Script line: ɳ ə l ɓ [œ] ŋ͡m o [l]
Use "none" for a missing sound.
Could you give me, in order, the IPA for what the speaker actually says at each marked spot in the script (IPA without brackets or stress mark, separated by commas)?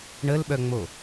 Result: œ, none